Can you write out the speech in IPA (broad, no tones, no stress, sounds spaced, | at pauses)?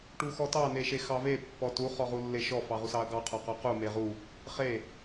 ʈ u x ɔ t ɑ n e ʃ e x ɑ v e pː ɔ t u χ ɔ ʁ u lː e ʃ ɔ f ɑ ʁ u s ɑ ɐ̯ ɡ ɑ qʰ ɔ q ɔ q u m e ʁ u | χ e